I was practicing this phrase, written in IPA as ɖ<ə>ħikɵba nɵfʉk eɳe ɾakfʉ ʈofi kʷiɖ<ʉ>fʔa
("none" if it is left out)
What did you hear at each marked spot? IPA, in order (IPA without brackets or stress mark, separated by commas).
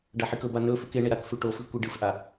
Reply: a, ɨ